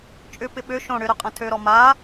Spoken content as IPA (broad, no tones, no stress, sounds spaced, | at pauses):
t͡ʃʼ ʏ p ɪ ɓ ø ʃ õ ɽ ʏ ɾ œ qʼ ɐ̃ tʰ ø ɾ ɔ m a